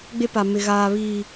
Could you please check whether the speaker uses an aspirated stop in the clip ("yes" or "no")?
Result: no